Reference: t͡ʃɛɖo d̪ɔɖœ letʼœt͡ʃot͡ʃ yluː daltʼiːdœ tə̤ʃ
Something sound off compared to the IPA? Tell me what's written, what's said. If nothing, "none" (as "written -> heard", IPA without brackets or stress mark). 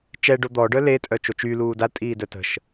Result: none